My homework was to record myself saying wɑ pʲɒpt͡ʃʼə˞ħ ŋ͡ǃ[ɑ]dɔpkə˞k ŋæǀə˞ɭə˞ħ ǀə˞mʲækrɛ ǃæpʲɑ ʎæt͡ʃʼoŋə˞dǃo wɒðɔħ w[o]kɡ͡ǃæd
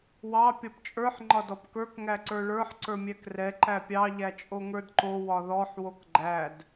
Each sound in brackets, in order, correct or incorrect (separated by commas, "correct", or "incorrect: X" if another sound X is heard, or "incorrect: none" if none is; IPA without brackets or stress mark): incorrect: ɒ, correct